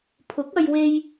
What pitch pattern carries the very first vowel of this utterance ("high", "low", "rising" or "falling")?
rising